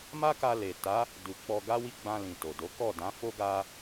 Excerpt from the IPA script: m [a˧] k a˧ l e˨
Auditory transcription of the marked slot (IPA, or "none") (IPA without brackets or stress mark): a˦